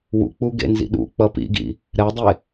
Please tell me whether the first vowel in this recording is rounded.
yes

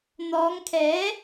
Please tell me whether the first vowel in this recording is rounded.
yes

